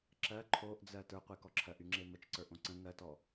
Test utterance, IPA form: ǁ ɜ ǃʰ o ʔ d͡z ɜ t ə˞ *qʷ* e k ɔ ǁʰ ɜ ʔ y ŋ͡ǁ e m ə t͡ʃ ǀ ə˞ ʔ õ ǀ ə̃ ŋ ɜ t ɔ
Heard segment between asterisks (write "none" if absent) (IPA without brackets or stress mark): qʷ